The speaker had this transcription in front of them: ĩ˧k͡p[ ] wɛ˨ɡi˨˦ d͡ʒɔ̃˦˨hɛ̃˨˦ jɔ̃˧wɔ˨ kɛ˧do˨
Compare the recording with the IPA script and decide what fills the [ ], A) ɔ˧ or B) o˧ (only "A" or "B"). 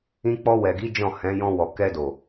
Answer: A